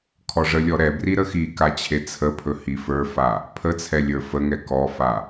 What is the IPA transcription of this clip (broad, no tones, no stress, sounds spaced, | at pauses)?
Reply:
kʰ ɔ ʐ ə lʲ ɔ ɾ ɛ b r i ɾ ə x i k a t͡ɕʰ e t͡sʰ ə pʰ ɵ h i f ə˞ f a | pʰ ə t͡sʰ ɛ lʲ ə˞ f ə ŋ ɛ k ɔ f a